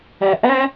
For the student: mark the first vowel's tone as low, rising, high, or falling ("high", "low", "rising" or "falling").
low